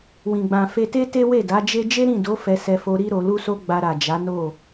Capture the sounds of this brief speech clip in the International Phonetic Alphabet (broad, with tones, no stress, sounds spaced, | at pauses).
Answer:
w ĩ˨ ɡ͡b ã˨ f e˧ t e˦ t e˦ w e˦˨ d a˨˦ d͡ʒ e˦ d͡ʒ e˦ ɾ ĩ˦˨ d o˨˦ f ɛ˧ s ɛ˧ f o˧ ɾ i˦ ɾ o˧ l u˦ s o˦ ɡ͡b a˧ ɾ a˨ d͡ʒ a˨˦ n o˦˨